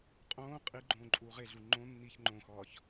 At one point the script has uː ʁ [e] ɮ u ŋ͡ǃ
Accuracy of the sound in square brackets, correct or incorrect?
correct